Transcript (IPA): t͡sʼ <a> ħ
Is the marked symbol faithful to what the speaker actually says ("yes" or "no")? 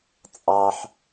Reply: no